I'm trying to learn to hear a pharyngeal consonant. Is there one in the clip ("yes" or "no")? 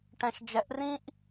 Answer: no